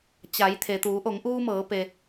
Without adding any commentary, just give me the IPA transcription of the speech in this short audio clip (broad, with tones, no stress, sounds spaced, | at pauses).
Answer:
t͡ɕ a˩˧ j t̪ʰ e˩ t̪ uː˩˧ ʔ o˩˧ ŋ ʔ uː˧ m ɤː˩˧ p e˩